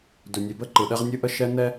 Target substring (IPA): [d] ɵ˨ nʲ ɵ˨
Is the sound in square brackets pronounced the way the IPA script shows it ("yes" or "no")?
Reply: yes